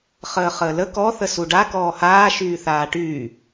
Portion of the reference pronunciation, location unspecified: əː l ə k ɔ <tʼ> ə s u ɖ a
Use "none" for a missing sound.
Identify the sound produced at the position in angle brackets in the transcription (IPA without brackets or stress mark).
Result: θ